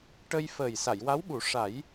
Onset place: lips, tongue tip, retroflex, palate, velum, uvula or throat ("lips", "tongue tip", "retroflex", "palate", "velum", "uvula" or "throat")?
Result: retroflex